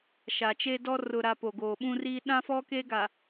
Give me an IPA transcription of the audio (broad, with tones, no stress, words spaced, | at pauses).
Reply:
ʃa˨t͡ʃe˦dɔ˦ rʊ˨ɾa˨ po˨ɡoː˨ɓũ˦ri˦ ɗã˦fɔ˦ke˦ ɡa˨